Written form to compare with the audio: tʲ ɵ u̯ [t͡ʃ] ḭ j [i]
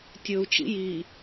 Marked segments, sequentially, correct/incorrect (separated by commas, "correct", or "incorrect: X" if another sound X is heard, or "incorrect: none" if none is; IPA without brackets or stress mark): correct, correct